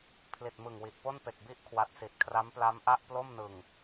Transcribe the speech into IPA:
pʰ l i˨˩ t̚ m ɯ˨˩ ŋ w i˨˩ ʔ p o˥˩ n p e˨˩ k̚ b i˥˩ ʔ kʰ w a˦˥ t̚ s i˨˩ t̚ kʰ r a˦˥ m p l a˦˥ m ʔ a˥˩ ʔ p l o˥˩ m n ɯ˨˩ ŋ

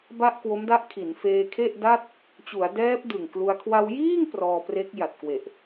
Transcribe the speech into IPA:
b a˥˩ ʔ k w o˦˥ m d a˦˥ ʔ kʰ i˩˦ n f eː˧ kʰ e˥˩ ʔ d a˥˩ t̚ | t͡ɕ u˩˦ a̯ d ɛː˦˥ p̚ d ɯ˨˩ ŋ k l u˧ a̯ kʰ w a˧ w j iː˥˩ ŋ p r ɔː˧ p r e˦˥ k̚ j a˨˩ t̚ k w e˨˩ ʔ

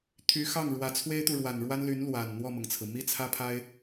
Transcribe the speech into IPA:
t̪ʰ y˧˥ x ɑ˥˩ ŋ ɻ w ä˨˩ t͡sʰ w e˥ ɪ̯ t̪ u˨ ɻ w a˨˩ n ɻ w a˥ n l y˧˥ n l w a˨˩ n n̪ w ɔ˥˩ m ɤ˩ ŋ t͡sʰ ɹ̩˩ m i˥ t͡sʰ ä˥ pʰ a˥ ɪ̯

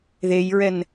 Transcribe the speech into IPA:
ð e j ɹ ɛ n

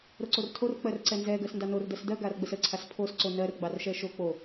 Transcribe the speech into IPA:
ɾ o ǀ o r tʰ o r k͡p ɜ r ǀ ɛ n z ɛ ɡ ɜ s n d ɑ n o r d ɜ s d ɜ ɡ a r ɡ͡b ə s ə ǀʰ a s pʰ o s ǀ o n ɜ r ɡ͡b ɑ r ʃ ɛ ʃ o k͡p o

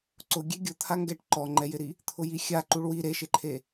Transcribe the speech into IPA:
ǀ ʊ ɡʲ e ɡʲ ʊ t̪ʰ a ŋ ɡ ɛ ʈ ǃ ɔ ŋ͡ǃ ɛ j ɪ ɾ i | t̪ʰ ʊ j i xʲ a ǃ u ɭ w i ɾ e ʃ ɪ ǃʰ e

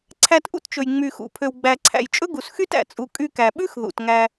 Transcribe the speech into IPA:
ǀʰ æ˧ t ʔ ṵ˦ t t͡ʃ ɵ˨ j ŋ͡m y˨ x ṵ˨ pʰ ø˨ w ɡ͡b æ˨ ǀʰ æ̰˨ j t͡ʃʼ ɵ˦ ɡ u˨ s x y˦ t æ̰˨ t͡sʼ u˨ kʼ y˧ k æ˨ ɓ ʉ˦ x ð ṵ˨ t ŋ æ˧

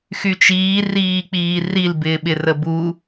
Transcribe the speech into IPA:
x y t͡ʃ iː r iː k͡p iː r i l b ɪː ɓ ɪ r ə b u

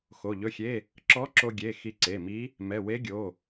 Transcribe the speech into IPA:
x o˩˧˩ ʎ ɵ˧˥˧ xʲ e˧˥˧ | ǁ ɔ˧˥ ǁ o˧ ɡʲ e˩˧˩ x i˧ ǀ e˩˧˩ m i˧˥ | m ɛ˩˧˩ w e˧˥ ɡʲ o˩˧˩

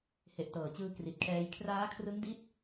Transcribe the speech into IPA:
h e˨˩ ʔ t ɤː˨˩ t͡ɕ ɯː˧ k r i˨˩ t̚ kʰ ɛː˧ j kʰ r aː˦˥ kʰ r ɯ˦˥ ŋ d i˦˥ t̚

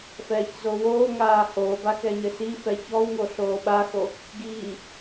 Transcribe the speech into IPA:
f ɛː ç z o w oː ŋ aː h oː b a k ɛ ɲ ɘ s i f ɛ ç ɔ w ŋ o ɬ oː ɓ a x o | ɡ iː

